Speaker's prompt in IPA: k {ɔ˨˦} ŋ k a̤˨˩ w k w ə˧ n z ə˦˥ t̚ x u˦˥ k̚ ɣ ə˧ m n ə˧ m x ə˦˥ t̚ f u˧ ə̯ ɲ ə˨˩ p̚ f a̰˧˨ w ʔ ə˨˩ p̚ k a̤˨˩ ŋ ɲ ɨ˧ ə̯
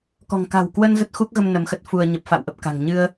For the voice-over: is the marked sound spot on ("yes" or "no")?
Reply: no